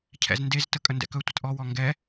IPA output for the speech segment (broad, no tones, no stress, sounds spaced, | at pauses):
cʰ ɛ̰ z n d e z t ə kʼ ə n d ɛ̰ k ɵ tʷ ə t ʔ ɔ w ɔ ŋ ɡ ɛ